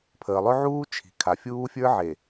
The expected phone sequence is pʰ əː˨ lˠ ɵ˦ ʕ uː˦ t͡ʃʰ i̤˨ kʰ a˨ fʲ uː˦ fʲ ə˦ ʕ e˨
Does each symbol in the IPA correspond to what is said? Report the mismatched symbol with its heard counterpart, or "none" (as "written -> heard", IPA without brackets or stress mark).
ə˦ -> ə˞˦